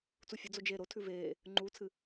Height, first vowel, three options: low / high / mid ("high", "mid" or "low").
high